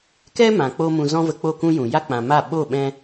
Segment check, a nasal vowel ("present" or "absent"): present